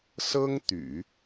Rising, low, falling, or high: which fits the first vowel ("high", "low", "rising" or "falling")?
high